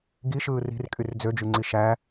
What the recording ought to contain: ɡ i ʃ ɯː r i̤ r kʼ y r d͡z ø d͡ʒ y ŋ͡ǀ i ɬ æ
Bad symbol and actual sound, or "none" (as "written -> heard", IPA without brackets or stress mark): ɬ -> ʃ